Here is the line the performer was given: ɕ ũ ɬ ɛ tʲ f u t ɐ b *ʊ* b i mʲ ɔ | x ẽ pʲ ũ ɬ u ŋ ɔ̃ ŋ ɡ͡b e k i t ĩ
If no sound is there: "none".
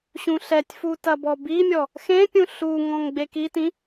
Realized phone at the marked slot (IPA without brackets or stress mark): ɔ